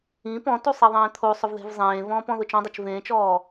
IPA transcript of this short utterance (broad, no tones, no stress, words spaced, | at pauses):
ĩ pɔ̃tu sˤiðˤẽːt̪ʰosˤʊv ðe̤vzˤẽːvɔ̃ːp ɔ̃ðʊt͡ʃɔ̃dˤɛt͡ʃ vẽːt͡ʃɔː